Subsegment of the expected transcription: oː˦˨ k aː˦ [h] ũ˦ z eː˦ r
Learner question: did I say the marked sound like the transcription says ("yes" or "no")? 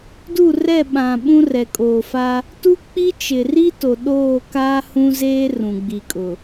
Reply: yes